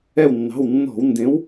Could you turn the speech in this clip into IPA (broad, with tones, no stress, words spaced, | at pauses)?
ɛ˧˩wnːɑ̤˩˧˩wnːɔ̤˧˩˧wndẽ˨˥w